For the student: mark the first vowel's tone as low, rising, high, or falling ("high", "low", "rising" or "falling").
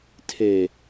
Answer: low